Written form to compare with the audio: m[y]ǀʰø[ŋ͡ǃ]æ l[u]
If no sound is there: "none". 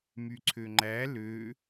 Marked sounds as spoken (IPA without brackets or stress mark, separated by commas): y, ŋ͡ǃ, ø